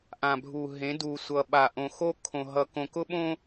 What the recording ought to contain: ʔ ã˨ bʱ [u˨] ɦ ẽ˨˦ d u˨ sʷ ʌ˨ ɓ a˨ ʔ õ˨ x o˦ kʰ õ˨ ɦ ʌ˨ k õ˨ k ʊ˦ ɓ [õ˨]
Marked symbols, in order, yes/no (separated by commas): yes, no